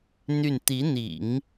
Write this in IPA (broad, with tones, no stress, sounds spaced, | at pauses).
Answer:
n̪ y˥˩ n t̪ i˧˥ n̪ ḭ˨˩˦ ŋ